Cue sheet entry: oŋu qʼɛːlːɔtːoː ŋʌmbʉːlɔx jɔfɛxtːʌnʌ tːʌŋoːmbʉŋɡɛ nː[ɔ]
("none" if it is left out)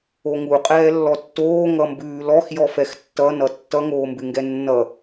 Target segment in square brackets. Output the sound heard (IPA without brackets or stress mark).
ʌ